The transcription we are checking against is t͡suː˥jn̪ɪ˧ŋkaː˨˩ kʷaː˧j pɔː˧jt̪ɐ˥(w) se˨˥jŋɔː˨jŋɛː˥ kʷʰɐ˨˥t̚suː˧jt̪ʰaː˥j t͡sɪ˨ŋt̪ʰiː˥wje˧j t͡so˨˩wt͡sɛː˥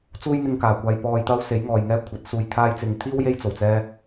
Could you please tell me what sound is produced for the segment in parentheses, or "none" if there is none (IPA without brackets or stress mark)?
w